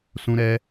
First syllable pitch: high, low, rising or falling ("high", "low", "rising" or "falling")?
high